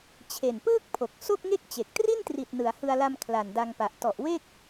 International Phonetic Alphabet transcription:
t͡ɕʰ e˨˩ n p ɯː˥˩ k̚ pʰ o˨˩ k̚ s o˥˩ k̚ ŋ e˥˩ k̚ t͡ɕ e˨˩ k̚ t r i˥˩ n t r i˨˩ t̚ n ɯ˩˦ a̯ h ɯ˧ a̯ l a˧ m kʰ l a˨˩ n d a˧ ŋ p a˨˩ ʔ t ɔ˨˩ ʔ w e˥˩ k̚

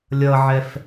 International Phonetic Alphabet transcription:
lʲ ʌ ʕ ɛ f

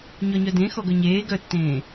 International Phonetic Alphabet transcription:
ɲ ɔ ɲ œ d ẽ x ɔ ɡ œ ɲ eː ɡ œ tː ẽː

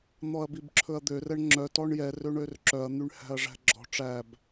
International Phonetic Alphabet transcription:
n̪ ɔ ɐ̯ b i b ǁʰ ɵ ɐ̯ d̪ ø r ɛ ɳ ŋ͡ǁ œ t ɔ ɳ j ɛ r ø ɳ ø r ǁ œ ɐ̯ n̪ y ɳ h æ̤ ɐ̯ ʐ æ̤ ɡ͡ǁ ɔ̤ ʈ͡ʂ æ b

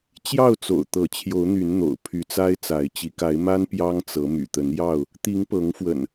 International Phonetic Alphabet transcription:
t͡ɕ j ɑ˥˨ ʊ̯ t͡s o̰˨˩ ʊ̯ t̪ ɤ˨˦ t͡ɕʰ j o˨˦ ʊ̯ n̪ y˨˦ n n̪ o̰˨˩ ʊ̯ pʰ y˨˦ t͡s a˦ ɪ̯ t͡s a˨˦ ɪ̯ t͡ɕ i˨˦ k a˨˦ ɪ̯ m a˦ n p j ɑ˦ ŋ t͡s ɤ˨˦ m y̰˨˩ t̪ ə˨˦ n j ɑ˥˨ ʊ̯ | t̪ i˨˦ ŋ p ɤ˨˦ ŋ f w ə̰˨˩ n

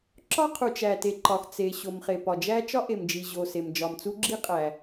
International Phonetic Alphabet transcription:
ǁ ɒ˥ qʰ u˩ t͡ʃ æ˩ t e˩ ǃ ɒ˩ x t͡s e˩ ɕ o˩ m χ e˩ p ɒ˩ d͡ʒ æ˥ t͡ʃ ɒ˥ ʔ e˩ m d͡ʒ i˩ ʑ o˩ s e˩ m d͡ʒ ɒ˩ m t͡s u˥ ɡ͡ǁ i˥ qʼ æ˩

